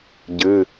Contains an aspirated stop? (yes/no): no